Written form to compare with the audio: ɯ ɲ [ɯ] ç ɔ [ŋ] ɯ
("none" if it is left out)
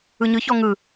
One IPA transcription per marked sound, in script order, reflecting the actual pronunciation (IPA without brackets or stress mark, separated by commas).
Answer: ɯ, ŋ